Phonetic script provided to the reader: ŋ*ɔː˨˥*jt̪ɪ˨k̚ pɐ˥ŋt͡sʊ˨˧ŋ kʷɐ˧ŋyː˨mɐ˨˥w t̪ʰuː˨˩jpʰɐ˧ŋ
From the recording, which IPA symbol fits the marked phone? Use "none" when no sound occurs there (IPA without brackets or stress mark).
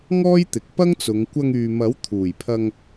ɔː˥